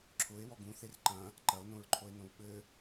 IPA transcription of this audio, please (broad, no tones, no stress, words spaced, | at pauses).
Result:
ǁʰʊe̯ wɔɡũθer ǃɐ̃ | ǃɐo̯nõɹǃʰoe̯ nõwɓɘ